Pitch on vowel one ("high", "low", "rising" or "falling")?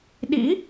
rising